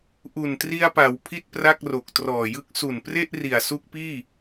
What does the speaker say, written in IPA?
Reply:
ʔ u˨˩ n t r i˧ a̯ p a˩˦ w pʰ i˥˩ t̚ p r a˥˩ k̚ r o˨˩ k̚ t r ɔː˨˩ j ɯ˦˥ k̚ s u˨˩ n p r e˥˩ ʔ r i˨˩ a̯ s u˦˥ k̚ p iː˥˩

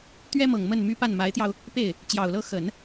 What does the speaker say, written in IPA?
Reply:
t̪ ɥ ɛ˥ m ɤ˨˩ ŋ m ə˥˩ n m y˥ p a˥˩ n m a˧˥ ɪ̯ t̪ j ɑ˧ ʊ̯ | p e˥˩ ɪ̯ | t͡ɕ j ɑ˨˩ ʊ̯ l ɤ˥ x ə˨˩˦ n

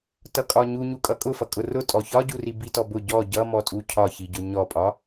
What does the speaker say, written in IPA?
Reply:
t ʌ kʼ ɒ ɲ u ɲ u kʼ ʌ kʼ ʊ f ʌ kʼ ʊ r ʊ tʼ ɔ ç ɒ ɟ u r i b i t ɔ b ʊ ɟ ɔ ɟ ʌ m ɔ tʼ u cʰ ɒ ç i ɟ ʊ ɲ ɔ pʼ ɒ

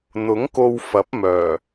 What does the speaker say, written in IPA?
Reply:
n̪ ʊ˨˥ ŋ k o˧ w f ɐ˨˥ p̚ m œː˨˩

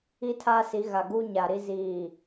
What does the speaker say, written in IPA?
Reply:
i˦ tʰ aː˦ s i˨˦ ɣ a˨ ɡ uː˦ ɲ a˨ ɾ i˦ z iː˦˨

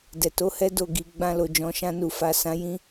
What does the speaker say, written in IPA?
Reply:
d ɛ˨ t o˨˦ h ɛ˦ d o˦˨ ɡ i˨ ɡ͡b ã˧ l o˨ d͡ʒ ɔ̃˨ ʃ ã˧ n u˨ f a˨ s ã˨˦ j ĩ˦

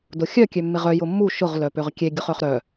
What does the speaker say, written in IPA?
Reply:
d ʊ xʲ œ kʲ ø mː ɪ ʁ œ j ʊ mː u ʃ ʊ ʁ l œ p ø ʁ kʲ e ɡʲ ʊ χ œ χ ɾ œ

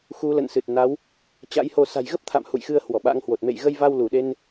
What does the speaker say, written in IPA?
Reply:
x u˨˦ l ə̰˧˨ n s ɨ˨˩ t̚ n a˨˦ w | t͡ɕ a̰˧˥ j h o˧ s a̤˨˩ j ɣ ə˦˥ p̚ t̪ʰ a̰˧˨ m h ṵ˧˨ j x ɨ˧ ə̯ h w ɔ˧˩ ɓ a̰˧˥ ŋ h w o˨˩ t̚ m ḛ˧˨ j ɣ ə˧ j v a˧ w l u˧˩ ɗ e˧ n

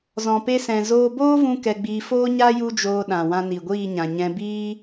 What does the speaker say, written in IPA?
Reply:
z ɔ̃˨ p e˧ s ɛ̃˨ z oː˧ b oː˦ v ũ˧ k ɛ˧ ɡ͡b iː˧ f oː˦ ɲ a˦ j u˦ d͡ʒ oː˧ ɗ ã˨ w ã˧ n i˨ ɡʷ iː˦˨ ɲ ã˨ ɲ ɛ̃˧ b iː˦

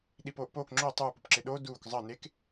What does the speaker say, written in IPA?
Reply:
ɗ i p oː ʔ p oː k ŋ͡ǁ o tˤ u p u p ǁ ɪ ɗ o d uː k zˤ əː n e k

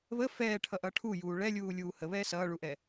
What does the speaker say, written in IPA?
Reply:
β ə f ɛː ʈʰ ʌ ʔ ʌ ʈʰ u j uː ɭ ɛ lʲ uː lʲ uː h ə β ɛː s ʌː ɭ u ʔ ɛ

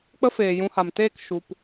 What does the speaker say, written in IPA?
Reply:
k͡p ə˦ f eː˨ j ũ˧ h a˨ m t eː˦˨ k ʃ u˨ p

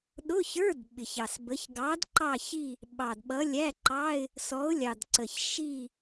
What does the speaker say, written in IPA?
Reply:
ɗ ʊ˧˥˧ ç ə˞˧˥˧ d ɓ ɪ˨˩ ç ɑ˨˩ s b ə˨˥ ç ɡ ɑ˨˥ d ǃ ɑ˦˨ ç i˦˨ | ɓ ɑ˨˩ d ɓ ʌ˨˥ lʲ æ˧˥˧ ǃ ɑ˧˥˧ ɪ̯ | s ɔ˨˥ ʊ̯ lʲ ɑ˨˩ d ǀ ə˨˩ ç ʃ i˦˨

